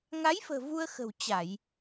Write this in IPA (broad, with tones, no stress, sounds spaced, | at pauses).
ŋ a˨˦ j f ə̤ː˨˩ v u˧ ə̯ x ə̤˨˩ w t͡ɕ a˧˩˨ j